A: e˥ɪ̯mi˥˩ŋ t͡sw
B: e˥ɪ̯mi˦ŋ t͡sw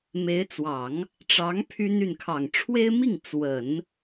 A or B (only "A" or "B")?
A